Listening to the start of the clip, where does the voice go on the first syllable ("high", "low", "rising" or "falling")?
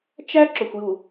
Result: high